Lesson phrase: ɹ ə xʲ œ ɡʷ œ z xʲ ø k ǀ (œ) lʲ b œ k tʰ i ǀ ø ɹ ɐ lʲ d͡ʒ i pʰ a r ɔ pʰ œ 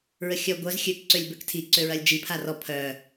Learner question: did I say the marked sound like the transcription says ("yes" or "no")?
no